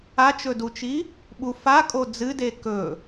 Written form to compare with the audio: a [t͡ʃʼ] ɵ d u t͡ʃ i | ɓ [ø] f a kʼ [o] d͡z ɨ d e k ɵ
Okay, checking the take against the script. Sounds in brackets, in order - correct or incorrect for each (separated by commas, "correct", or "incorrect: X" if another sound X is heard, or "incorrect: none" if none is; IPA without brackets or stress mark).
incorrect: t͡ʃ, incorrect: u, correct